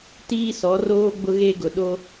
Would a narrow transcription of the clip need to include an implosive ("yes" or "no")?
yes